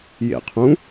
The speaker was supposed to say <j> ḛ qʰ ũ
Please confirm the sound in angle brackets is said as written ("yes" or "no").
yes